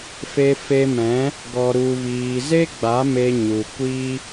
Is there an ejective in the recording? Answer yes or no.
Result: no